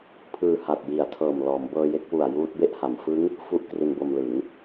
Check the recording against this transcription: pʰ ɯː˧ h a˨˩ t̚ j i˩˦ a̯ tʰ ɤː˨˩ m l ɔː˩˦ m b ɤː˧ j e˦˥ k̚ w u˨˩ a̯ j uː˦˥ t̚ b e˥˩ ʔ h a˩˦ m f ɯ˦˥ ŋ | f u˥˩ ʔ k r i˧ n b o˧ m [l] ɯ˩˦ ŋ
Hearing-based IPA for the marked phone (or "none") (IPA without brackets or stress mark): l